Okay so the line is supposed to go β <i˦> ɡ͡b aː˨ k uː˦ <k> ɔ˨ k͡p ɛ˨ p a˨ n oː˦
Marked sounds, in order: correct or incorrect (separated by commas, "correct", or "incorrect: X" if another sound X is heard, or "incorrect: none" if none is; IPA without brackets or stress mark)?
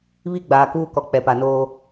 correct, correct